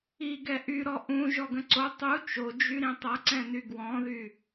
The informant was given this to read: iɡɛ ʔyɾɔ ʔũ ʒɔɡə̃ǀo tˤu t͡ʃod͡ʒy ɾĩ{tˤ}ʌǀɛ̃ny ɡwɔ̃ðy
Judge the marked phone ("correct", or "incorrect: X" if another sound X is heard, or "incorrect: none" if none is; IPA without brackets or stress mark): correct